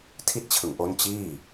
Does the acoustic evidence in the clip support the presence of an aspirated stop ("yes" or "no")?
yes